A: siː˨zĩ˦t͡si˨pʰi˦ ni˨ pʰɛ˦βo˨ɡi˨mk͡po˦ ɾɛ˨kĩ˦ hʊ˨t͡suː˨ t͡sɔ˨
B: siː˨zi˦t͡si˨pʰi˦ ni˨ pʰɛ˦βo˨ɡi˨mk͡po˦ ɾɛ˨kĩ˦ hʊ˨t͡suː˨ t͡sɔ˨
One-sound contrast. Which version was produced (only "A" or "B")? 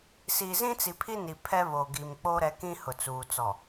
A